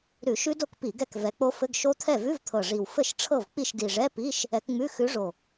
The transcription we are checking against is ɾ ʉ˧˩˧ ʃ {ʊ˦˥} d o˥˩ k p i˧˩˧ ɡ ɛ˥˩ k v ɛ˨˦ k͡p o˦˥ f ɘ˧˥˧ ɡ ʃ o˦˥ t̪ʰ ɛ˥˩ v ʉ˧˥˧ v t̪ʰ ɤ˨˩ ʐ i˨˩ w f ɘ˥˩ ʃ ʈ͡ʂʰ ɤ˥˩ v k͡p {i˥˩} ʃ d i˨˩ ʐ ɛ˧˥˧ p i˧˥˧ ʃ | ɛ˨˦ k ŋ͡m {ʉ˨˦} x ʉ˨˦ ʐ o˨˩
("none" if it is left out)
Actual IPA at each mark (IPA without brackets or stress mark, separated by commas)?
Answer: ʉ˦˥, i˥˩, ʉ˧˥˧